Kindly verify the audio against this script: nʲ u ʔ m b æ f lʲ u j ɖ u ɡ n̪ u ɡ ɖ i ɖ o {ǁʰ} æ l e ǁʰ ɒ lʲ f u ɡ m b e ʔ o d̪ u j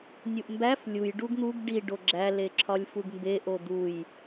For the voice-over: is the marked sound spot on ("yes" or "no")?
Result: no